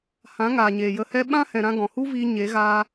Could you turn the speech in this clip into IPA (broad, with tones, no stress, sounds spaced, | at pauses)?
h ã˨˦ ŋ aː˨ ɲ eː˨ j ə˧ h ɛ˦ ɓ ã˦ h ɛ̃˨ ɾ ã˧ ɡ ɔ̃˨ h u˦ v iː˧ ɲ e˨˦ ɣ aː˦